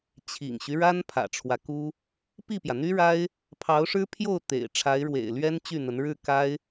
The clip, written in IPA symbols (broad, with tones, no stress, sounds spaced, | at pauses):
t͡ɕʰ ḭ˨˩ ŋ ɕ y˦ ɻ a˥ n pʰ ä̰˨˩ ʈ͡ʂʰ w ä˦ k u˥ | p i˥˩ p j ä˩ n̪ y˥ ɻ a˥ ɪ̯ | pʰ ɑ˧˥ ʊ̯ ʂ ɻ̩˥ pʰ j o˥˩ ʊ̯ t̪ ḛ˨˩ ɪ̯ ʈ͡ʂʰ a˧˥ ɪ̯ ɻ w ḛ˨˩ ɪ̯ l ɥ ɛ˥ n t͡ɕ y˥˩ n̪ ə˧˥ n ɻ ɻ̩˥˩ k a˥ ɪ̯